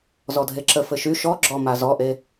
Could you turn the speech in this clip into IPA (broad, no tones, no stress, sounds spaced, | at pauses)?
z ɔ dʱ e ǁ ə f ɘ ʃ y ʃ ɔ ɡ͡ǁ ɔ m a z ɔ ʔ e